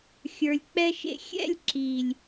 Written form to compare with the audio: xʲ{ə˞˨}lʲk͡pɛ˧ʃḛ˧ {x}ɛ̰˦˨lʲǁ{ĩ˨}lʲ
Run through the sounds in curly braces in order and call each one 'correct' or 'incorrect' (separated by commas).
correct, incorrect, incorrect